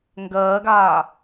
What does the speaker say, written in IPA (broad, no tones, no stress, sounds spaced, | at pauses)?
ŋ ɡ ɜː ɡ aː